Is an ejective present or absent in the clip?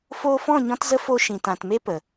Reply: absent